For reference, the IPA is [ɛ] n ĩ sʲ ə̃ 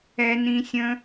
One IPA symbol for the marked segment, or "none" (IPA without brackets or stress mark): ɛ